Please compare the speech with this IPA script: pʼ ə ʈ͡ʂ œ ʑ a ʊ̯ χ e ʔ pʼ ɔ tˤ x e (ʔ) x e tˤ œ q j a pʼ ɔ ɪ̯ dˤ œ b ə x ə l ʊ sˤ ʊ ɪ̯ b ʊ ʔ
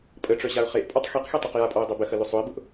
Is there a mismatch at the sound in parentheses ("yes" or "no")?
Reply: yes